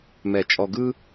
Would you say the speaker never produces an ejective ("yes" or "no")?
no